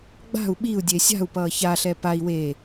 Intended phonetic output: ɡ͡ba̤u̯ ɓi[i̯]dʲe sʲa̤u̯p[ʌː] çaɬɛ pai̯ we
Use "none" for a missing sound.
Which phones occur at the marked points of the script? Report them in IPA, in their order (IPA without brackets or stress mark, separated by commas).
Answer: u̯, ʌː